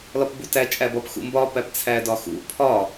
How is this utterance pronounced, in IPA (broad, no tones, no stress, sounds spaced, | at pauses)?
l ɒ p b u t æ t͡ʃʼ æ b ɒ p x ṵ m b ɒ p æ p t͡sʰ æ d ɒ x ṵ pʰ ɒ